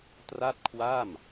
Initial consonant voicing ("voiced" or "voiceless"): voiceless